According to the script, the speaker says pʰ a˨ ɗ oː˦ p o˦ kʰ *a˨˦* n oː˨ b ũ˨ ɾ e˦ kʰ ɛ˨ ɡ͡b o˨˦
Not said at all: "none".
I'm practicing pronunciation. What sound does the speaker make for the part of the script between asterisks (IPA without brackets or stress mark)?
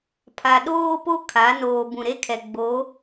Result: a˨˦